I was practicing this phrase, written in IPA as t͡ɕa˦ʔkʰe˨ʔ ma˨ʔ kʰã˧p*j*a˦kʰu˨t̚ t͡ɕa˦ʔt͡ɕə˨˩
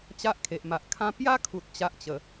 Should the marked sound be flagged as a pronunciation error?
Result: no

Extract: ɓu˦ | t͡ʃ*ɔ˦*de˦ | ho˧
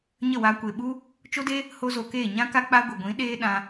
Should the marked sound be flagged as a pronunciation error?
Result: yes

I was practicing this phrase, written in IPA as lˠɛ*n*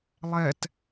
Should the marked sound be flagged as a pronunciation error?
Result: yes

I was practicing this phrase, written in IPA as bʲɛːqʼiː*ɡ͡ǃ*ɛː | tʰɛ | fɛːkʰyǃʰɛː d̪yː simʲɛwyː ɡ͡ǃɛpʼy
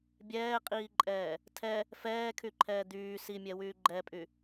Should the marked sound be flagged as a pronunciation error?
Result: yes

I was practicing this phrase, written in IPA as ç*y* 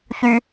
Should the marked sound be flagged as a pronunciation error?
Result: no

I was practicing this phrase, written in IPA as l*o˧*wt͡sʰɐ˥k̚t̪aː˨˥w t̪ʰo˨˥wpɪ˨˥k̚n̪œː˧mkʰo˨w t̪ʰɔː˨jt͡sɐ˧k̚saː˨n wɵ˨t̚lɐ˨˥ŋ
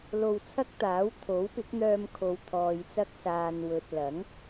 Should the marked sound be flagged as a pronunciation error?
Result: no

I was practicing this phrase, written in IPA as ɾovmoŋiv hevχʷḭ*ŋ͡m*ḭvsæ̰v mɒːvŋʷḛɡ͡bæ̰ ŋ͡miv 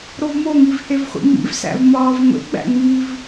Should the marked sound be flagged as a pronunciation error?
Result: no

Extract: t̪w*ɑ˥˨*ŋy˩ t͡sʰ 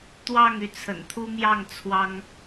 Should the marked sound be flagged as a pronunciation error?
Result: no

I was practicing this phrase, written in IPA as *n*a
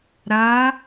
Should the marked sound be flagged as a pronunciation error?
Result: yes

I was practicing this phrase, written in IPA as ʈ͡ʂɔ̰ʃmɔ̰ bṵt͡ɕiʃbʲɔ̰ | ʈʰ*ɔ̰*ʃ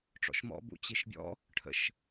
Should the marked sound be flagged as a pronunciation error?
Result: yes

